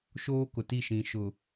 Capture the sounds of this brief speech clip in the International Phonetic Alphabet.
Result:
ʃ oː˦ k ʊ˨ t i˦˨ ʃ ĩ˨ ʃ ʊ˨

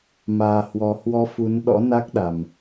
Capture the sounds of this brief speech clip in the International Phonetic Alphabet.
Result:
m aː˨˩ h w ɔ˨˩ h w ɔ˧ f u˨˦ n ɗ ɔ̰˧˥ n a˦˥ k̚ ɗ a˨˩ m

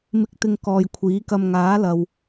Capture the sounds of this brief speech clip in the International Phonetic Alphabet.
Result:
m ɪ˨˥ k̚ t̪ ɪ˨ ŋ k ɔː˨ j kʷʰ iː˨˥ k ɐ˧ m ŋ aː˨˥ l ɐ˨ w

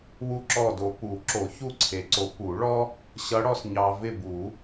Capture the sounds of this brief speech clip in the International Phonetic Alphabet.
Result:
w u˦˨ ǁ ɔ˦˨ d o˨ p u˨˩˦ ǁ o˨˩˦ ç u˦˨ ǀʰ e˨˦ ǀ o˨˦ p u˨˩˦ ɭ ɔ˥ | ɕ ʌ˨˦ ɽ ɔ˨ s ɲ ɑ˨ v ɪ˦˨ b u˨˩˦

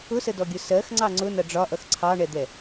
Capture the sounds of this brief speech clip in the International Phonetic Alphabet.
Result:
ʊ s ə d ɔ ɡʲ ʊ s ɜ x ŋ͡ǀ ɑ ŋ͡ǀ ʊ n ʌ ɖ͡ʐ ɒ ʔ ʌ x ǀʰ ɑ ɳ ɛ d̪ ɛ

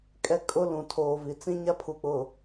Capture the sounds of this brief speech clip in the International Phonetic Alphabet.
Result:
kʼ ɛ˦ kʼ ʊ˦ l ũ˨ tʰ oː˨ v i˨ t͡s ĩ˦ ɲ a˦ pʰ u˨ k͡p ʊ˨

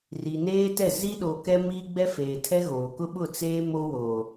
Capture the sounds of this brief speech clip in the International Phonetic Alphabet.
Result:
r i˨ n eː˦ t ɛ˦˨ z i˦ ɗ o˨ k ɛ˦ m iː˦ ɡ͡b ɛ˦ f eː˨ tʰ ɛ˦ ɣ oː˨ k ʊ˦ ɓ ʊ˦˨ t͡s eː˦ m o˦ w oː˨

